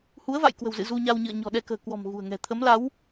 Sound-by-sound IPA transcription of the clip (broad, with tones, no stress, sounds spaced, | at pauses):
h u˨˦ ə̯ v a̰˧˨ j k w ə̤˨˩ w z ɨ̰˧˨ z u˧ ɲ a˧ w ɲ ɨ̰˧˨ ə̯ ɲ ɔ̤˨˩ ɗ ɛ˧ k ə̤ː˨˩ k w ɔ̤˨˩ m ɣ ṳ˨˩ ə̯ ŋ ɛ̤˨˩ t̪ʰ ə˨˦ m l a˨˦ w